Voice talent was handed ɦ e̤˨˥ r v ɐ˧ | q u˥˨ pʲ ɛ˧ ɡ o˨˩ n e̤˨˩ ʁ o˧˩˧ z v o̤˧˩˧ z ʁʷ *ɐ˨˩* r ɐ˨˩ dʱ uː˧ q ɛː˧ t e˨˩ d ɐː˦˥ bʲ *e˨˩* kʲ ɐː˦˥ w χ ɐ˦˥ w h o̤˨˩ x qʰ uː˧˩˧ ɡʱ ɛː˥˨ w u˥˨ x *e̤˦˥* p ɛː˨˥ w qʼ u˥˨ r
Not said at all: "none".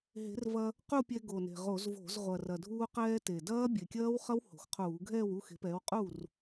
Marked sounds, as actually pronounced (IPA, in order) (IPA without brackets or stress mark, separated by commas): ɐ˨˩, e˨˩, e̤˨˥